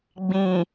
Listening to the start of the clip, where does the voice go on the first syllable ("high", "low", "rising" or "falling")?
low